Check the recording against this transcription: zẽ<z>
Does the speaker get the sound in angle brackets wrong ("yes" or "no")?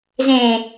yes